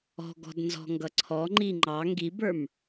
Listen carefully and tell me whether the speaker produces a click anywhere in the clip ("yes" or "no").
yes